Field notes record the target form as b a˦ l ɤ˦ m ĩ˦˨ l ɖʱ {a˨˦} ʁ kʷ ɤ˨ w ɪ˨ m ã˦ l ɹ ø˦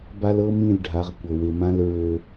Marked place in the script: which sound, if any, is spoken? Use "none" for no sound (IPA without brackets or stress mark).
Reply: a˨˦